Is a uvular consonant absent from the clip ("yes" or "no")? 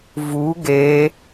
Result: yes